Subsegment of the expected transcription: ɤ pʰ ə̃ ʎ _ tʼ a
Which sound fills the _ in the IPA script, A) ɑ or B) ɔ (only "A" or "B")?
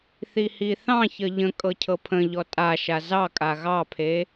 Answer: B